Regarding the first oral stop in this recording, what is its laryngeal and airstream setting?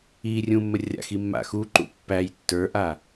click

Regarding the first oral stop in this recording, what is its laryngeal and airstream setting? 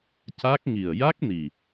plain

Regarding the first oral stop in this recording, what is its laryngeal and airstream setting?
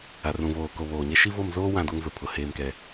plain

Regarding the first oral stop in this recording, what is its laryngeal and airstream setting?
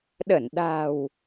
implosive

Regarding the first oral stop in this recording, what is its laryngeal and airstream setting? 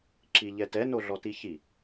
click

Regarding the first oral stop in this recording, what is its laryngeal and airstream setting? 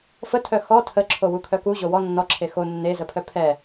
aspirated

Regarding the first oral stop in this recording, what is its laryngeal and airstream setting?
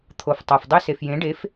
aspirated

